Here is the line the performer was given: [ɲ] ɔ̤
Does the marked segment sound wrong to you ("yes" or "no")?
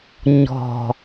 no